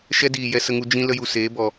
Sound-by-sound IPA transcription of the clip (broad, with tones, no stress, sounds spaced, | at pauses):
ʃ ɛ˦ d iː˨ j ɛ˧ s ə˧ ŋ u˧ d͡ʒ ĩ˦ l ə˧ j u˨ s eː˨˦ b ɔ˨